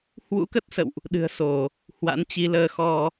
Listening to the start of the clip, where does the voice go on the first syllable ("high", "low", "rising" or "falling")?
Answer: rising